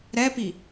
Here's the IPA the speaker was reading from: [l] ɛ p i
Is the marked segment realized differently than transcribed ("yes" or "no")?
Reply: yes